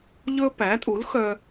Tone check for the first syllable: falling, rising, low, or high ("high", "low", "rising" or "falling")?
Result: high